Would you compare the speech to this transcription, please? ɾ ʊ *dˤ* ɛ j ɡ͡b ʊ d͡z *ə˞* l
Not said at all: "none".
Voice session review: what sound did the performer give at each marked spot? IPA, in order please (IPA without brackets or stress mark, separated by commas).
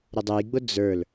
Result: dˤ, ə˞